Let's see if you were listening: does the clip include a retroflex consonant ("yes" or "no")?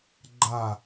no